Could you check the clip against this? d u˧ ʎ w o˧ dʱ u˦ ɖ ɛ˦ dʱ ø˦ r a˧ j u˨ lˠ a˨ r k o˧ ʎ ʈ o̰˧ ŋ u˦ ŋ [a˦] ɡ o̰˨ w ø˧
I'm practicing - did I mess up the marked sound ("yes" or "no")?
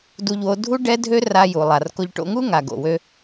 yes